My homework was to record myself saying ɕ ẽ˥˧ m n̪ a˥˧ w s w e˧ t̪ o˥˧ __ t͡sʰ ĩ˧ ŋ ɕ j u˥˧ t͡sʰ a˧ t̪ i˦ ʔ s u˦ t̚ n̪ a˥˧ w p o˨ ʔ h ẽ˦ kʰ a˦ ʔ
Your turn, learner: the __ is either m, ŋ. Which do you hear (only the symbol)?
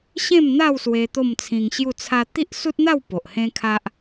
m